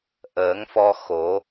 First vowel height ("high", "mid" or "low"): mid